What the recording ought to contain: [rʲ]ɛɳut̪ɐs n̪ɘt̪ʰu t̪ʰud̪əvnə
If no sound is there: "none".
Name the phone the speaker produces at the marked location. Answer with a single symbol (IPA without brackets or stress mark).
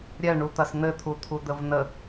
ɾʲ